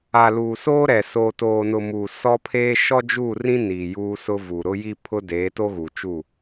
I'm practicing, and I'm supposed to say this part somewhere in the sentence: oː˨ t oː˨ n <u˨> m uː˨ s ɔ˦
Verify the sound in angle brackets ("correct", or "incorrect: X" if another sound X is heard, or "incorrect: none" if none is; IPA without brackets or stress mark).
incorrect: ʊ˨